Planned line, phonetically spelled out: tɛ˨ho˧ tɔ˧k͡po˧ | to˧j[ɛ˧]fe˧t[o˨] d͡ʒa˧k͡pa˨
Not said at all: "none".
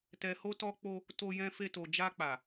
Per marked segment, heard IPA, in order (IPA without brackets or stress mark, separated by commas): ɛ̃˧, o˨